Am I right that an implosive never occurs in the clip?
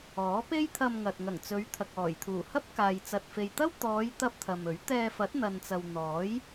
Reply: yes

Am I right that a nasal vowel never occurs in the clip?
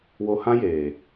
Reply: no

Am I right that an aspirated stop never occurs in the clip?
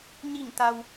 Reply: yes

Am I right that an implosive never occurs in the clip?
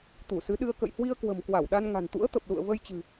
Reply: no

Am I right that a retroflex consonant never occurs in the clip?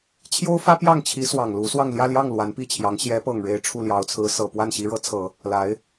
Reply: no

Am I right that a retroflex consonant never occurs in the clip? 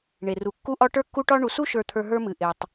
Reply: no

